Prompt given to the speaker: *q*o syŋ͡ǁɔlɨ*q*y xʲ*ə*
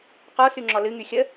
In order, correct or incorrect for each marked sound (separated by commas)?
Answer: correct, incorrect, correct